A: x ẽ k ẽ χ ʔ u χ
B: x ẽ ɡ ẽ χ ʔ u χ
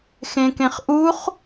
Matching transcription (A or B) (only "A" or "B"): A